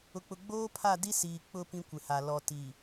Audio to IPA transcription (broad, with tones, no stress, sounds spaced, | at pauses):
ʊ˨ k͡p ʊ˨ ɡ͡b oː˦ pʰ a˦˨ d i˦ s iː˨ k͡p ʊ˦˨ p ĩ˦ kʷ ɪ˨ h a˨ l ɔ˨ t i˨